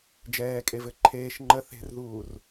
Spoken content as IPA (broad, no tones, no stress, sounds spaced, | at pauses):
d͡ʒ ɛː kʼ e v ɘ ǃʰ eː ʃ ŋ͡ǃ ə θ e̤ r ð uː r